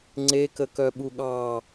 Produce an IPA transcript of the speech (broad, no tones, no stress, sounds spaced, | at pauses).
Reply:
ŋ͡ǀ e k ə k œ ɓ u ɠ ɑ